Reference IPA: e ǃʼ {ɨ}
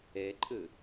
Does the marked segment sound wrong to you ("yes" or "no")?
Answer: no